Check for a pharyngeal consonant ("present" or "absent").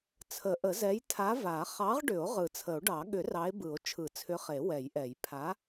absent